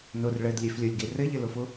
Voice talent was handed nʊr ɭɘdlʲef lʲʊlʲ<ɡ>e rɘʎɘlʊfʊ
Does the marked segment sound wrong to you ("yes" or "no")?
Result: no